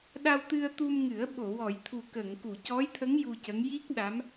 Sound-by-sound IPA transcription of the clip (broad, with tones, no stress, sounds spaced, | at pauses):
ɗ a˧ w t̪ ɨ˧ ə̯ t̪ u˧ m ŋ ɨ˨˩˦ ə̯ ɓ o˨˩˨ w ɔ˨˩˨ j t̪ʰ u˨˩ k ə˨˩˨ ŋ k u˨˩˨ c ɔ˧˥ j t̪ʰ ə˧˥ ŋ j u˧ c ə˧˥ ŋ j i˦˥ k̚ ɗ a˧˥ m